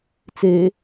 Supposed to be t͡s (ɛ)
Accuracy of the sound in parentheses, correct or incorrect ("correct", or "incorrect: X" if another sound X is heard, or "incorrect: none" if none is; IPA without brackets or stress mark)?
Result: incorrect: e